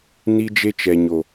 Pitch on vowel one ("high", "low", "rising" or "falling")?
high